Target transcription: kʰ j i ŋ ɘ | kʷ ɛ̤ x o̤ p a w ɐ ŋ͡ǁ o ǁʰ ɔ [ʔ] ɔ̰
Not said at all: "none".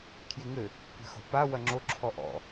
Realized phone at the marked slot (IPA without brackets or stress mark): ʔ